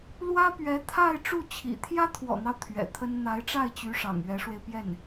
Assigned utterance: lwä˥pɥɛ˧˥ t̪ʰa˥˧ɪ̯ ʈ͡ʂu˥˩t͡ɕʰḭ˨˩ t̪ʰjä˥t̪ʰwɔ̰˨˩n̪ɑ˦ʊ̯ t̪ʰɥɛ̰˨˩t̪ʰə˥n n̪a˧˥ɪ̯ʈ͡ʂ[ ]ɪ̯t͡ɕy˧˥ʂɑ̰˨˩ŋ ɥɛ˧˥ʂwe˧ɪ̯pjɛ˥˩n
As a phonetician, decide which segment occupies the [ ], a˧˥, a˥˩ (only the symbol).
a˥˩